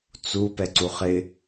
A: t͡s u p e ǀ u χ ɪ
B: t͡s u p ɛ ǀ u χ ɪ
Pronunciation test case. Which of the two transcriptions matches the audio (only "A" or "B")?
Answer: B